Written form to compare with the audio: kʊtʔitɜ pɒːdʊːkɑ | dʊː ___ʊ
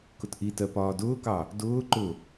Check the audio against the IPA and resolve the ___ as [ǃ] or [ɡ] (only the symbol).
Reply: ǃ